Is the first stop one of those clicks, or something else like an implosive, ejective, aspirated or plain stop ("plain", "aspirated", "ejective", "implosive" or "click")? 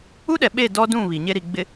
implosive